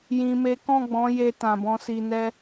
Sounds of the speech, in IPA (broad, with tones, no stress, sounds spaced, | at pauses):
j ĩ˨ m e˨˦ k ɔ̃˦˨ ɡ͡b ɔ̃˨˦ j e˧ t ã˨ b ɔ̃˨˦ s i˧ n ɛ˦